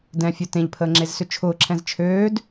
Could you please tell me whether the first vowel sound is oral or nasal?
nasal